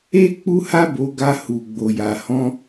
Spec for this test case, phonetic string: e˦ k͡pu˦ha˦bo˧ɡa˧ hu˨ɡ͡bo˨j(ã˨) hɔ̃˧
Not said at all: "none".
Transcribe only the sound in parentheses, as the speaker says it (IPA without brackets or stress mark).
a˨